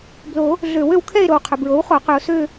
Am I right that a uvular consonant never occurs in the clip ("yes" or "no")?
no